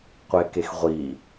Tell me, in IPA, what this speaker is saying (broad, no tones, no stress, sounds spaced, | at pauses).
qʷ e k e x ʁʷ i